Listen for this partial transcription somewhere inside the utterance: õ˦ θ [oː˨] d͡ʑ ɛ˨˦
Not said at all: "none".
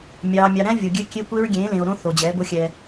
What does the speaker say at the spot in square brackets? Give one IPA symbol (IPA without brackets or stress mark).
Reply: o˨